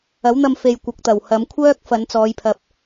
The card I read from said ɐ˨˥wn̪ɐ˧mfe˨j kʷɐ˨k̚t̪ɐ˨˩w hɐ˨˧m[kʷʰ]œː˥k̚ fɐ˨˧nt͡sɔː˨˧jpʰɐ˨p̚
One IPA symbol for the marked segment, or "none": kʷʰ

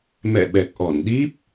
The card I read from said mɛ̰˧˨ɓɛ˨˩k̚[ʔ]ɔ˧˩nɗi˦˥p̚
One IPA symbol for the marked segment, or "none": ʔ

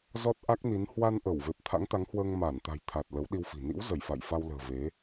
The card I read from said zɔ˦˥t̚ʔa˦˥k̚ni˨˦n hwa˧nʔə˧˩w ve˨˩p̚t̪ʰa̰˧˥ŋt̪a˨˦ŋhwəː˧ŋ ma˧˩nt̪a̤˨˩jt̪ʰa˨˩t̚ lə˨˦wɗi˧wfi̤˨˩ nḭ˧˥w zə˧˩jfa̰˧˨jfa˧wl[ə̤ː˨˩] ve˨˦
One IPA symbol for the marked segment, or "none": ə̤ː˨˩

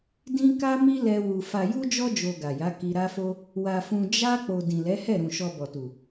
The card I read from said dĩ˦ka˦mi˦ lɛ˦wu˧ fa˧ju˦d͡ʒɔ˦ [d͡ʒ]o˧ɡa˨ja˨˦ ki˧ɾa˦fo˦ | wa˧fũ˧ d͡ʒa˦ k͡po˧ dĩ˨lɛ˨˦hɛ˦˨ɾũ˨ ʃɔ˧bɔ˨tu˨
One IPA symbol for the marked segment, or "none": d͡ʒ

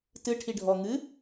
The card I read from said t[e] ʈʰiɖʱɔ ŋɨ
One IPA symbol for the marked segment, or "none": ɨ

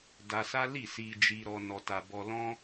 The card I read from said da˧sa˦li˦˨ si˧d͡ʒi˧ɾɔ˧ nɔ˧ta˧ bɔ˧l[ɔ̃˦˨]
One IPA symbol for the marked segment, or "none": ɔ̃˦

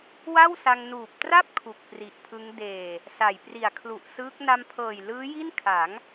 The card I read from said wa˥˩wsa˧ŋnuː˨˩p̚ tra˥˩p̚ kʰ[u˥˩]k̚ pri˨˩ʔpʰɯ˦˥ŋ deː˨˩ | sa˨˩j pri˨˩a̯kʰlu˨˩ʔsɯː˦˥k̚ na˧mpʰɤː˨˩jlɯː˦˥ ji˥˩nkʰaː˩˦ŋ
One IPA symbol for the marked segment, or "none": u˨˩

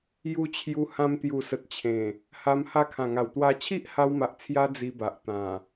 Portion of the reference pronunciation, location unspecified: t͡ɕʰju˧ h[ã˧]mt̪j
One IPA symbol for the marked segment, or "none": ã˧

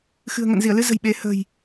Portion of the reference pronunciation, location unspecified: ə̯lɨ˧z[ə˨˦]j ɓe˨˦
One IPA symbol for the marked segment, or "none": ə̤˨˩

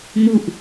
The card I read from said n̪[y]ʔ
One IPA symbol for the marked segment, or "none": u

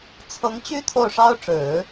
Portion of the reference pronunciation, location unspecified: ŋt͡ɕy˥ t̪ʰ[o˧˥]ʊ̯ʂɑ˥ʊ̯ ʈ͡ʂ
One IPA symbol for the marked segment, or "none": o˥˩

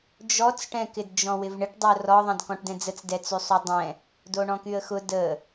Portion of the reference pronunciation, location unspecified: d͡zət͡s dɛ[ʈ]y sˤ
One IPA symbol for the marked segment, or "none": t͡s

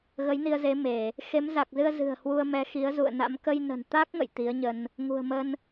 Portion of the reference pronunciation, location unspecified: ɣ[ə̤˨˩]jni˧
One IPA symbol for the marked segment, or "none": ə˨˦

